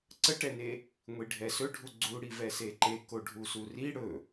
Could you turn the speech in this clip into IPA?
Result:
ǀ ə ʈ ɛ n e | ŋʷ i ɖʱ ɛ s ɵ ɖʱ u ɡ͡ǀ u ɽ i v ɛ s e ǃ e k o ɖʱ u s u r i ɽ ɵ

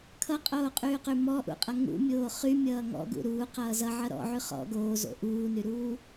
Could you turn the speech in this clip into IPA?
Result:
kʰ ʌ qʼ oː qʼ yː q y m ɔ ʔ ṵ qʼ ʌ ŋ ṵ mʲ oː χ y mʲ ʌː ŋ ɔ̰ ɡ ṵ ɾ uː q ʌː z ʌ ʕ ʌ ɾ ɔ̰ ʕ y χ ɔ̰ ɡ oː z o̰ ʔ uː n y ɾ uː

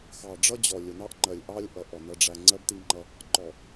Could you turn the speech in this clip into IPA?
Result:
x ɑ˨ ɖ͡ʐ ʌ˦ d͡ʑ ɔ˨ lʲ ʊ˨ n ɑ˦ ʔ ŋ͡ǃ ɜ˨ lʲ ʔ ɑ˦ lʲ ʔ ʌ˨ ʔ ɔ˨ n ʌ˨ ɖ͡ʐ æ˨ ŋ͡ǀ ɜ˦ b t i˦ ŋ͡ǃ ʌ˦ | ǃ ɔ˨

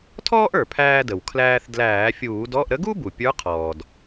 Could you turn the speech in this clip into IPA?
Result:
tʰ ɔː˥ ʔ ə˞˩ pʰ æː˧ d ə˩ w kʰ l æː˧ θ d l æː˧˩˧ fʲ uː˧˩˧ d ɔ˧˥˧ ʔ ɾ ə˧˥ ɡ u˥ b u˩ pʲ ə˞˧˥ qʰ ɔː˩ d

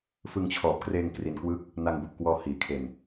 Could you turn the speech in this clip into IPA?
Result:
f ɯ˧ ŋ t͡ɕʰ ɔː˨˩ p̚ k r eː˧ ŋ k r i˧ n k w ɯ˥˩ k̚ | n a˧ ŋ b u˨˩ ʔ k w ɔː˧ h iː˩˦ kʰ e˧ n

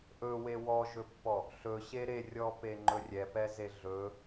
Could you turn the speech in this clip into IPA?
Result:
ʔ ɵ w e w ɔ ʒ ɵ pː ɔ | ɬ ɵ ɕ e ɾ e rʲ ɔ p e ŋ͡ǃ ɵ rʲ ɛ p ɛ z e ɮ ɵ

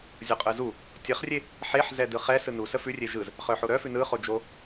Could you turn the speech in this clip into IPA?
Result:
zʲ o qʼ ɯ z u | tʲ ə χ rʲ e | ħ e ħ z ɛ d ɯ χ ɛ s ɯ n u s ə f ʉ rʲ e ʒ ɯ z | χ œ ħ o ɾ œ f ʉ n ɯ χ o d͡ʒ o

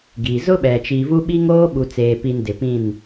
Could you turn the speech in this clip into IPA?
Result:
ɡ i˨ z ʊ˦ ɓ ɛ˨ t͡ʃ i˨ v u˦ ɓ i˦ ŋ oː˦ ɓ u˨ t͡s eː˨ p i˨ n d ɪ˨ p ĩ˦˨ n

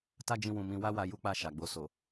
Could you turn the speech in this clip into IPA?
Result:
t a˦ d͡ʒ ĩ˧ w ũ˨ m ĩ˧ w a˦ w a˧ j u˦ k͡p a˦˨ ʃ a˨ ɡ͡b o˧ s o˨

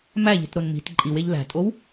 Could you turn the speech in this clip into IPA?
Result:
m æ ʎ i̤ t ɾ o n m i̤ t ǃʼ i w e ʎ l æ̤ tʼ o w

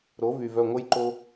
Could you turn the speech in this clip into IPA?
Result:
ɾ o˨˦ v y˨ v œ˦˨ ŋʷ ə˦ j ǃ o˦

